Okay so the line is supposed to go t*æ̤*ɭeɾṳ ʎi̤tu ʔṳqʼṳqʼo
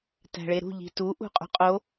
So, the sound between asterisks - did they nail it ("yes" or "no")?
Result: yes